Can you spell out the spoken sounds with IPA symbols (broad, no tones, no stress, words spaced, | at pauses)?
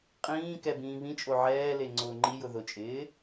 qʼĩːkɛ bĩːβĩt͡ʃʼo ʕɛːle ŋ͡ǀʊːŋ͡ǃijʊ ðʊt͡ʃʼɪː